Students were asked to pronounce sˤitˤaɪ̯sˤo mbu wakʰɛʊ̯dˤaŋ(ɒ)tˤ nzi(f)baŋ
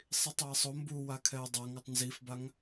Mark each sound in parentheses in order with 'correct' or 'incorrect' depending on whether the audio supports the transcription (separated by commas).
incorrect, correct